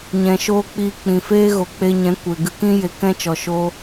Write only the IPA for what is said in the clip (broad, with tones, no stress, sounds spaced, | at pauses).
ɲ ɛ̃˨ ʃ oː˧ k͡p iː˧ k͡p ĩ˨ f eː˦ ɣ o˨ k͡p e˧ ɲ ɛ̃˨˦ kʷ e˨ ɡ ɨ˧ k ĩ˦ j e˨ k ɛ̃˦ t͡ʃ ɔ˨ ʃ oː˦